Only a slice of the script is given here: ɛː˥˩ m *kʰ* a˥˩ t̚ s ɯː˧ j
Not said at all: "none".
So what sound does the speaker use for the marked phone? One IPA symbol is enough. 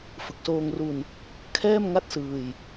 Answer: ŋ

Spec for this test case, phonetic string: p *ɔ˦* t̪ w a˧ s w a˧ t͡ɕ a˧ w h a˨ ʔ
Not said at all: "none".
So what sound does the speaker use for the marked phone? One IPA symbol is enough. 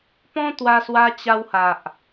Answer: ɔ̃˦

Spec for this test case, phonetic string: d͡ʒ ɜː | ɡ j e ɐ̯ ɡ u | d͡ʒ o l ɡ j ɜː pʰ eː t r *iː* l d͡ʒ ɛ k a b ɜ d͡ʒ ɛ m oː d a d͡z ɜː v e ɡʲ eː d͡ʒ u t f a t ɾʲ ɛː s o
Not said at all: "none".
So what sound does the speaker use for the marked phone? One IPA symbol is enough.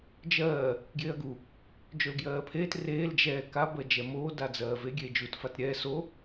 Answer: eː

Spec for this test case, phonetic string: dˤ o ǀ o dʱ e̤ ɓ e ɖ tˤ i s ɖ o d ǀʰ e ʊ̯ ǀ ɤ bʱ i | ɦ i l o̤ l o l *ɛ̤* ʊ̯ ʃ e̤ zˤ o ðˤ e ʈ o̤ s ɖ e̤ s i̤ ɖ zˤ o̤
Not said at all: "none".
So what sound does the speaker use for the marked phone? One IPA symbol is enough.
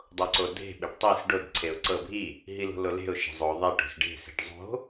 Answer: e̤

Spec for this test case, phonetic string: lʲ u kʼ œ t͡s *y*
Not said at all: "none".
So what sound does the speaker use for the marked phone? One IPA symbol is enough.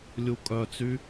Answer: y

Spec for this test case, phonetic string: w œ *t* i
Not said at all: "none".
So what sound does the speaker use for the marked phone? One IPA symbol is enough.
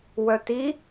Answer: t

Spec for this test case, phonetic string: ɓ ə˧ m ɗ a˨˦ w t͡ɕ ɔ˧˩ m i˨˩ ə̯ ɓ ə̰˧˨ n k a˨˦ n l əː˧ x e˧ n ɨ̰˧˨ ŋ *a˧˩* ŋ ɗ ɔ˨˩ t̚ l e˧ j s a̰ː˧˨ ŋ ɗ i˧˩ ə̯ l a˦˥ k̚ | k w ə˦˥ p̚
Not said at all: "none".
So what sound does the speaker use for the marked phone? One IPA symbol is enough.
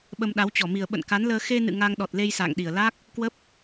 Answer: a˧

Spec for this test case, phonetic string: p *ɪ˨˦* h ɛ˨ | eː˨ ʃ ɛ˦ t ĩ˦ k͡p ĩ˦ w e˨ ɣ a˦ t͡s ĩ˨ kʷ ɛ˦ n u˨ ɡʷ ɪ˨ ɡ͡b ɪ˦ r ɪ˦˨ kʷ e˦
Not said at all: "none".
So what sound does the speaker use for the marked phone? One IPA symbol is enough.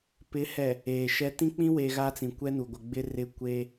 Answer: ɪ˨˦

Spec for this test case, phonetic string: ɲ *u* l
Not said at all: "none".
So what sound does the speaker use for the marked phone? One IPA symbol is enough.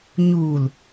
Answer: u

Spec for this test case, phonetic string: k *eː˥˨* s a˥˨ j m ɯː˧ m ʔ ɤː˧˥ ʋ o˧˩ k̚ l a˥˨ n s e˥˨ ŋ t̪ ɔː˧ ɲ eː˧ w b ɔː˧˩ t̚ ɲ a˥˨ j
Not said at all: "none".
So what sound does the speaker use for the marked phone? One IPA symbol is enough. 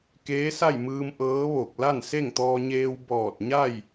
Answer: eː˧˥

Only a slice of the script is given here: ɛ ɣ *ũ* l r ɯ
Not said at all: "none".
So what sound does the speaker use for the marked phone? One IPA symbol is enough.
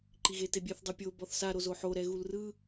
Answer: u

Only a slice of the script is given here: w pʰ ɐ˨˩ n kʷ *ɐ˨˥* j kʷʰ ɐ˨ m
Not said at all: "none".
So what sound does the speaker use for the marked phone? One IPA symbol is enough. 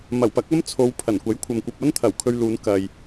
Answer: ɐ˨˥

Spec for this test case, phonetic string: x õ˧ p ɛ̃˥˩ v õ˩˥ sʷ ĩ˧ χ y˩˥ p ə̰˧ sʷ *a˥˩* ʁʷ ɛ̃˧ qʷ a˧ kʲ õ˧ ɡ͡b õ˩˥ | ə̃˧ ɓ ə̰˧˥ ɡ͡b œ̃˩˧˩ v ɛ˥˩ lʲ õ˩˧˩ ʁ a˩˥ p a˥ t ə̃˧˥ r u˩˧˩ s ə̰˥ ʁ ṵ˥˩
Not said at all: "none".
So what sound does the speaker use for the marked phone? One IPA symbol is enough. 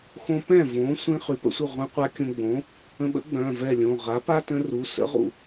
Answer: ə˥˩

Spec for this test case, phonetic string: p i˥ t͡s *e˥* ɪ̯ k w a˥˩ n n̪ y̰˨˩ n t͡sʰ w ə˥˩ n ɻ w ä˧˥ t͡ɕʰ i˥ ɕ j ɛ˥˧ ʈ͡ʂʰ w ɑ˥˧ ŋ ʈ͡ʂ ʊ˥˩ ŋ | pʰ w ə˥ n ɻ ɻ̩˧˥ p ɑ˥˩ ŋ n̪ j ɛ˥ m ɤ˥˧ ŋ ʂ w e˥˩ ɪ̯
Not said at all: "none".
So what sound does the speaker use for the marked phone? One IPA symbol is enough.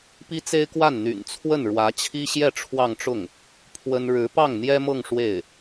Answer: e˥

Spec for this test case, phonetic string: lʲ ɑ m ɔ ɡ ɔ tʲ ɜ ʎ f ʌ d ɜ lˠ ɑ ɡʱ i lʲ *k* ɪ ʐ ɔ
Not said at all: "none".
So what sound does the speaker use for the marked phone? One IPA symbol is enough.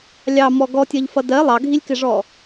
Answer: k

